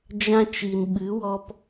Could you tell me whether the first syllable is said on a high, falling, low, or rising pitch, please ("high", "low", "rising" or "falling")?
high